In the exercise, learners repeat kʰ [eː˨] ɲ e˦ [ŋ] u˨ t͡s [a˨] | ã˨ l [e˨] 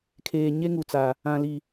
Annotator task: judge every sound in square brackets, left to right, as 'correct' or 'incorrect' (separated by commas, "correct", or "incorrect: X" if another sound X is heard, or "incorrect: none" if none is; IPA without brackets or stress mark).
correct, correct, correct, incorrect: i˨